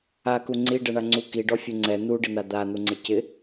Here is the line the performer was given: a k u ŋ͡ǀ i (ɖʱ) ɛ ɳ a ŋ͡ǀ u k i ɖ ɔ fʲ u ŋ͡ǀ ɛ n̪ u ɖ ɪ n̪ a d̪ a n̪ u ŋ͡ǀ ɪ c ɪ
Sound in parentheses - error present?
yes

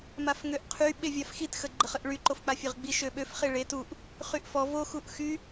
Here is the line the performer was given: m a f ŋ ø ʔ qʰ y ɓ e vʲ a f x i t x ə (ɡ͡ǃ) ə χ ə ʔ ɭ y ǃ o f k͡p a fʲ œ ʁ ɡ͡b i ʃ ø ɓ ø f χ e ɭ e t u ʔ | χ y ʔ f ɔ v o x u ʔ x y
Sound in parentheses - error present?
no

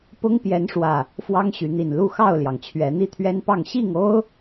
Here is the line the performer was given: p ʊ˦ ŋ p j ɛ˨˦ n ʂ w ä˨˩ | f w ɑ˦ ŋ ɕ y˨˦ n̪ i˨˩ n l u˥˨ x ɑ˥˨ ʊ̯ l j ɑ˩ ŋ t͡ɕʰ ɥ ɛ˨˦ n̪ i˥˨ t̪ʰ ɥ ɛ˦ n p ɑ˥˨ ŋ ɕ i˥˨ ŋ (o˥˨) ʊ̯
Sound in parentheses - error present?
yes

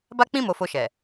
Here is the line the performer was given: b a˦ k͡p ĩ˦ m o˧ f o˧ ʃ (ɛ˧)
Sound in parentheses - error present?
yes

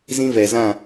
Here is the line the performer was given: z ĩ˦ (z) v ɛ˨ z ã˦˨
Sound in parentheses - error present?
yes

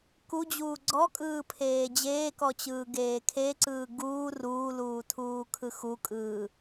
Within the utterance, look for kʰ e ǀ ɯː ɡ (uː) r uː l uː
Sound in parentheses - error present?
no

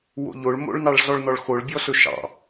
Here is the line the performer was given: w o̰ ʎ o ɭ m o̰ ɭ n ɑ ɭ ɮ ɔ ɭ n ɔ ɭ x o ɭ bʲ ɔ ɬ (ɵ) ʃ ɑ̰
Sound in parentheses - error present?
no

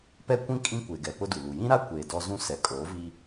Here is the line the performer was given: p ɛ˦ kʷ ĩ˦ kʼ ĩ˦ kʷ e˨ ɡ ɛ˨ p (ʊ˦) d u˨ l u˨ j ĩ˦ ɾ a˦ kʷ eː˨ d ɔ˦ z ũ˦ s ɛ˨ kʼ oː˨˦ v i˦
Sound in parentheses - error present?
no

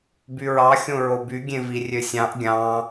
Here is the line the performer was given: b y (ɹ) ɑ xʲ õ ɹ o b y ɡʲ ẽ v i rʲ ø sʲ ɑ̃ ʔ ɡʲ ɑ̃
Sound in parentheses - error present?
no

